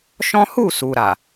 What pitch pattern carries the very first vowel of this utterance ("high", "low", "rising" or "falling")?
high